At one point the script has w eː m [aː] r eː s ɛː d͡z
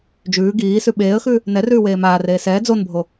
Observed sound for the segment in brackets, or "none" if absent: aː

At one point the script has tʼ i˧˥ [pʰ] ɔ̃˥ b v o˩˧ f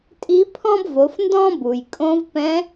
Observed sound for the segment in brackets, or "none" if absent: pʰ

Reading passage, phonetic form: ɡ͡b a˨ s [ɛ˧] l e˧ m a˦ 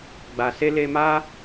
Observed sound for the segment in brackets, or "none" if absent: e˧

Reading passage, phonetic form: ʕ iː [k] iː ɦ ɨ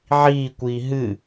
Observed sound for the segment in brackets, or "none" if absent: kʷ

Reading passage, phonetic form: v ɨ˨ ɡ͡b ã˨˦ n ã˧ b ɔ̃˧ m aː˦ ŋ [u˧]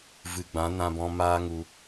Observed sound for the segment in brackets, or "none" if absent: u˧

